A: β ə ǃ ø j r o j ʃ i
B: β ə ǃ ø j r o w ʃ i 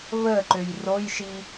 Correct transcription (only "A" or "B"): A